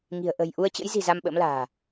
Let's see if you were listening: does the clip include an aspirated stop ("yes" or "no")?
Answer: no